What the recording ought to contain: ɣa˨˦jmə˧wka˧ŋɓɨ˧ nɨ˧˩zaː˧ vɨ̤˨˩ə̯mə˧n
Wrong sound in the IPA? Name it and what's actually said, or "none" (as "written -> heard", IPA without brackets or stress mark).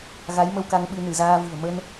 none